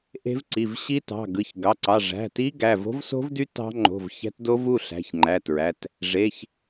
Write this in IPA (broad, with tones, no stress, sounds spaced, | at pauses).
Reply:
ʔ e̤˦˥ v ǀ i˩˧˩ v ɕ i˦˥ t ɑ̤˩˧˩ ɡ ɯ˩˧˩ ç ɡ ɑ˩˧˩ ǀ ɑ˩˧˩ ʐ æ̤˩˧˩ t i˦˥ ɡ æ˩˧˩ v o̤˦˥ v s o̤˦˥ v d y˦˥ t ɑ̤˦˥ ŋ͡ǃ o̤˩˧˩ v ç æ̤˦˥ t d o˦˥ v u˩˧˩ ɬ æ̤˩˧˩ ç ŋ͡ǃ æ˩˧˩ t ɹ æ˩˧˩ t | ʐ e˩˧˩ ç